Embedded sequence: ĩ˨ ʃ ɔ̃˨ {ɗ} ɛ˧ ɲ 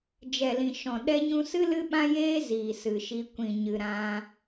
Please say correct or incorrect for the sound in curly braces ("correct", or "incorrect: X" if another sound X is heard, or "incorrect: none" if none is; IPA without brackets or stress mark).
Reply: correct